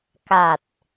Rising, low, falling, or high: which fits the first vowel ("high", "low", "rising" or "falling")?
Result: low